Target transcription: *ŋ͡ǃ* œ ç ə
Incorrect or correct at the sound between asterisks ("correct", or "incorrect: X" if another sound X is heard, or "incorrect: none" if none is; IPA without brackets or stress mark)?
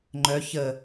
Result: correct